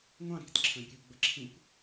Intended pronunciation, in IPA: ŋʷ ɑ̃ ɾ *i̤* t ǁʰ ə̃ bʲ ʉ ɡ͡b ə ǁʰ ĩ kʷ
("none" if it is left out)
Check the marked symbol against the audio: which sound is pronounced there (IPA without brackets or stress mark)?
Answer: i̤